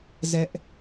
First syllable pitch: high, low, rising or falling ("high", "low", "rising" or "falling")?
high